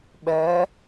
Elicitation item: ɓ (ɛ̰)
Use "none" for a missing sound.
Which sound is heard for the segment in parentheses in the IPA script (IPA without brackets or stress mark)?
ɛ